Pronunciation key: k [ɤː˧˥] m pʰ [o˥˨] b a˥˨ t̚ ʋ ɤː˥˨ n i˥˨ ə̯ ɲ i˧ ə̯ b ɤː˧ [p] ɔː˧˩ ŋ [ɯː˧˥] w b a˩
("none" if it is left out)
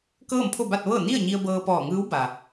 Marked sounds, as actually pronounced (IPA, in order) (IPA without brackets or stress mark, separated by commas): ɤː˥˨, o˥˨, p, ɯː˧˥